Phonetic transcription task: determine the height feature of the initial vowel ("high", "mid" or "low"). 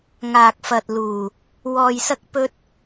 low